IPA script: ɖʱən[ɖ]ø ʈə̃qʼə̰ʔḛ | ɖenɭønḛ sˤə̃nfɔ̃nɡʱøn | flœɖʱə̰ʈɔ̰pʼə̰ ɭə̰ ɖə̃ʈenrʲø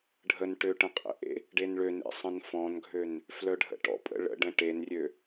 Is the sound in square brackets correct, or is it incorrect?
incorrect